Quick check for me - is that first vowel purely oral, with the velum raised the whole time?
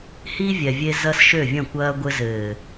yes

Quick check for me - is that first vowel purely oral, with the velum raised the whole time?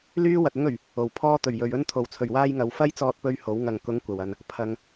yes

